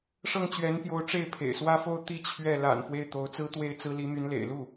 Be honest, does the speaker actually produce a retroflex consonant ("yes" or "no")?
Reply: yes